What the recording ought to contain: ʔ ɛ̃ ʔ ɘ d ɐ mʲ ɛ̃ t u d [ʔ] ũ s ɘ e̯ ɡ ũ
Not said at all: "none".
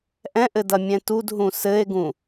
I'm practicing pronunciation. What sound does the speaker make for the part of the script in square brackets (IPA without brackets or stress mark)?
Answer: ɦ